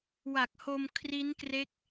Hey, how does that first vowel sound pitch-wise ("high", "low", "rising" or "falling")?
low